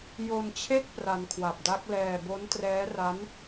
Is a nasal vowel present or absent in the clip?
absent